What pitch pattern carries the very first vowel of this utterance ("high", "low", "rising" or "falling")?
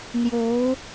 rising